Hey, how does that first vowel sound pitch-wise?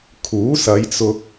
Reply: rising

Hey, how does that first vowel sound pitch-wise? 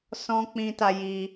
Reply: high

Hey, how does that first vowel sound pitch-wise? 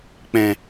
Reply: low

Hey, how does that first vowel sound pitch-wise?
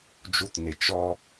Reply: low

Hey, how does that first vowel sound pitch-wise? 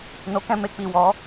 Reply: low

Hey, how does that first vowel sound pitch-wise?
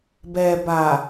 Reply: low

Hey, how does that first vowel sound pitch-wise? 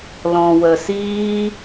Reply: low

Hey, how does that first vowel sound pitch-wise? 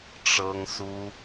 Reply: high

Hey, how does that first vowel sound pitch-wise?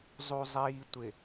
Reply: low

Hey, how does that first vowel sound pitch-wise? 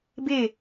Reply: falling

